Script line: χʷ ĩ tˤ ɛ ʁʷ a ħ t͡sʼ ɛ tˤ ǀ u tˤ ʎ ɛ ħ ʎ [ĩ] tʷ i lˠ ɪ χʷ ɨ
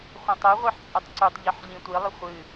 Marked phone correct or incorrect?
correct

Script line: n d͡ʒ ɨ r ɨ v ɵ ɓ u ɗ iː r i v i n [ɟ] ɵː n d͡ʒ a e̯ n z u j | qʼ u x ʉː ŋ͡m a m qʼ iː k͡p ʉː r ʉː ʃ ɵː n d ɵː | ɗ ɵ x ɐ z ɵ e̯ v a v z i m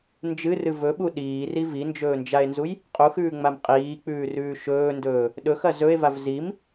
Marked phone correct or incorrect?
incorrect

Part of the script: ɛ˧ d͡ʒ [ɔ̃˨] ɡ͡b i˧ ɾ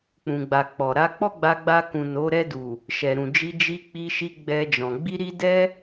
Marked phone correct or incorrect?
correct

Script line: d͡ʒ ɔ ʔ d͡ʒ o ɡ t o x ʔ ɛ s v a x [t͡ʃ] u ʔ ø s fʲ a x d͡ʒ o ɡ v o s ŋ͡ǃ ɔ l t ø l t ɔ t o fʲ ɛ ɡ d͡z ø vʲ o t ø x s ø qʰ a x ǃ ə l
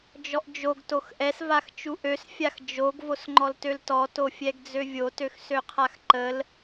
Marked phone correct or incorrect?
correct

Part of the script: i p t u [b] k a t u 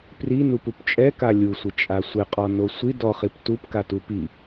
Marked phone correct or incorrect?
incorrect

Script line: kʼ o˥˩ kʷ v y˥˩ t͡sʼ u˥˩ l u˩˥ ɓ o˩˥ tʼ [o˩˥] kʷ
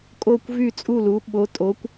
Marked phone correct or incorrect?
correct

